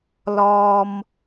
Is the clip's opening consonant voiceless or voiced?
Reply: voiced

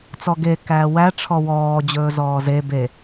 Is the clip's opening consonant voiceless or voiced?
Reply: voiceless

